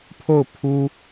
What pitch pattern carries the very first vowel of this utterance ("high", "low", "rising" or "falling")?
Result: falling